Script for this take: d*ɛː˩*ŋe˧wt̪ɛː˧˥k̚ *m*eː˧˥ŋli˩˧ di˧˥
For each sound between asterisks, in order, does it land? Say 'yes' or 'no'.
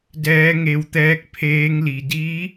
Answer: no, no

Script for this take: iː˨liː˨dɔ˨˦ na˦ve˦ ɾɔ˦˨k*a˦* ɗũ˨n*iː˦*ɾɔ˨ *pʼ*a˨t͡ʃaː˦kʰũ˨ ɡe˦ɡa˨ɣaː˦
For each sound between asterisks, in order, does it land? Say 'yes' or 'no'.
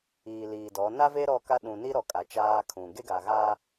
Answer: yes, no, no

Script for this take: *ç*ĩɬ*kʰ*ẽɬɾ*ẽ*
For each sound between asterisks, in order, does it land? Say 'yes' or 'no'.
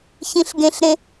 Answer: yes, no, yes

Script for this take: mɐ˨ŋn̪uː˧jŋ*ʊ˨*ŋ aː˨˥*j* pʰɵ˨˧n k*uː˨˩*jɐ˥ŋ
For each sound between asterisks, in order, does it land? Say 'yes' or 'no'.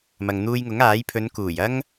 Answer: no, yes, yes

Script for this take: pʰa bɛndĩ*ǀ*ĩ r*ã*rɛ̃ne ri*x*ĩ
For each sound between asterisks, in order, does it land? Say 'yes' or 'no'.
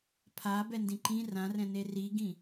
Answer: no, yes, no

